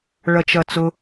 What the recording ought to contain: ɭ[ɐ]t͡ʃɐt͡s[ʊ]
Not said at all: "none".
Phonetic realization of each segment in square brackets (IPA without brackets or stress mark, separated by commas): ɐ, ʊ